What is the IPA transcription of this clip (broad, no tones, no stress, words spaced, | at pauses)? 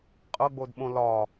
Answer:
qʼɤɡ͡bodɓõ lɒ